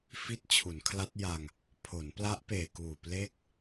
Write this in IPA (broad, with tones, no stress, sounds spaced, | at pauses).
f i˦˥ t̚ t͡ɕʰ u˩˦ n kʰ l a˦˥ t̚ j a˧ ŋ | pʰ o˩˦ n p l a˦˥ ʔ p eː˨˩ k uː˨˩ p l e˥˩ k̚